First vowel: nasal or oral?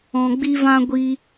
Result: nasal